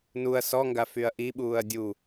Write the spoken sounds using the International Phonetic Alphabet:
n u ɐ̯ s ɔ ŋ ɡ a f y ɐ̯ ʔ i ɓ uː ɐ̯ dʲ u

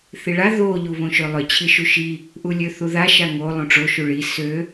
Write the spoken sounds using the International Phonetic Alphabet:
θ i ɭ a ð o ʎ u β õ ʃ ø lˠ ʏ t͡ɕʰ i ʃ u ʃ i | ʔ u lʲ ø θ u ð a ʃ a ŋ o lˠ õ ʈ͡ʂ o ʃ u ɭ i s ø

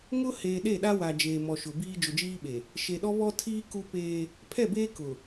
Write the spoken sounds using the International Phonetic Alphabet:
ŋ ʊ˦ h eː˨ ɗ e˦˨ ɗ a˦ w a˨ d͡ʒ eː˨ m ɔ˨ ʃ ʊ˨ b iː˦ d͡ʒ ʊ˨ d͡ʒ iː˦ ɓ e˨ | ʃ e˨ ɗ ɔ˦ β ɔ˦ tʰ iː˦ k u˦ p eː˦ | pʰ ɛ˦˨ b eː˦ k ʊ˨

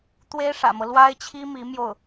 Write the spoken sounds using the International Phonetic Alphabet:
t̪ w e˥ ɪ̯ ʂ ä̰˨˩ m ɤ˦ l w a˥ ɪ̯ t͡ɕʰ i˥ m i˧˥ m j o˥˩ ʊ̯

